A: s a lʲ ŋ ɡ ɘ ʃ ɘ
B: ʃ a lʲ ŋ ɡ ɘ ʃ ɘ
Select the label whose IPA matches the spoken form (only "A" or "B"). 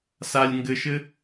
A